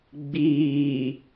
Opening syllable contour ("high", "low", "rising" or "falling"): low